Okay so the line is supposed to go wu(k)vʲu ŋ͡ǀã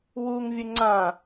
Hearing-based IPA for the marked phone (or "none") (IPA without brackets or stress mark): ŋ